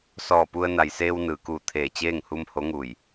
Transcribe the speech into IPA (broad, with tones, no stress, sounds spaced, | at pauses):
s ɔː˧˩ p u˧ ə̯ n a˩ j s eː˧ w n ɯː˩ k uː˧˩ t̪ʰ eː˧˩ t͡ɕ eː˥˨ ŋ h u˧ m h o˧˥ ŋ uː˧˩ j